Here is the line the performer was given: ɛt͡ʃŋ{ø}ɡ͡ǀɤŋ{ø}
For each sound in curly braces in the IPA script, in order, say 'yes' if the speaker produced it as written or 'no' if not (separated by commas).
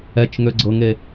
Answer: yes, no